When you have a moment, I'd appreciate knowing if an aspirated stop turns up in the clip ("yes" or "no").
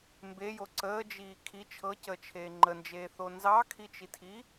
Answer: yes